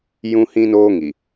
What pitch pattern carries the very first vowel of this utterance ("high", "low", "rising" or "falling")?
high